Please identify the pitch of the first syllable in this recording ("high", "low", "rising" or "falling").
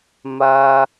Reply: high